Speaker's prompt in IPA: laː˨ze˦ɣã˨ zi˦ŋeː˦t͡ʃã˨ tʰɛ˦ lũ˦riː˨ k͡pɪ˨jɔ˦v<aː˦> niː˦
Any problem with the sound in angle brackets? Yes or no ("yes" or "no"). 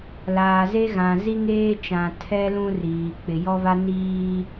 yes